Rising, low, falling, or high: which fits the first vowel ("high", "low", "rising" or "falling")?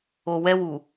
low